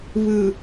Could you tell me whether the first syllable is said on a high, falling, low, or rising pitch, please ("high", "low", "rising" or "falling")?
low